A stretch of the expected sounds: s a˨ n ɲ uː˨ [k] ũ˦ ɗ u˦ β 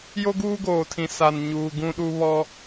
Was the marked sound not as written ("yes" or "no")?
yes